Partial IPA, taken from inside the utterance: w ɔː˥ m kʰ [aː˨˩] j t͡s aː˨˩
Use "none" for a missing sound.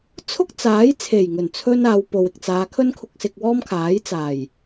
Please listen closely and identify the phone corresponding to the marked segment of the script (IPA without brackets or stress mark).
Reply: aː˨˥